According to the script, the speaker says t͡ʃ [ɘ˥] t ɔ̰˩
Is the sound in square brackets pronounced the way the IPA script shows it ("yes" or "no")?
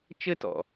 yes